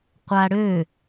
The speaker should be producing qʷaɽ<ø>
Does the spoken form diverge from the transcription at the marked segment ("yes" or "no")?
no